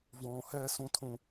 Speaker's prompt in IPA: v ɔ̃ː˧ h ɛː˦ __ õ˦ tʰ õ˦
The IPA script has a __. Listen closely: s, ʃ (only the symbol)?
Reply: s